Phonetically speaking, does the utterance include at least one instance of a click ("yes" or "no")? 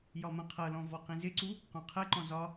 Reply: yes